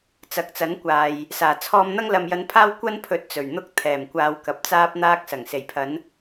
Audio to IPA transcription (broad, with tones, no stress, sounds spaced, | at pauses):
t͡s ɐ˨ k̚ t͡s ɐ˨˥ n kʷ aː˨ j | s aː˨˩ t͡sʰ ɔː˧ m n̪ ɐ˧ ŋ l ɐ˨ m j ɐ˨˧ n pʰ aː˧ w kʷ ɐ˥ n pʰ ɵ˨˥ t̚ t͡s ɵ˨˩ ɥ n̪ ʊ˧ k̚ t̪ʰ ɛː˨˩ m kʷ aː˨ w k ɐ˨ p̚ t͡s aː˧ p̚ n̪ aː˧ k̚ s ɐ˨˩ ŋ s e˨˩ j pʰ ɐ˨˧ n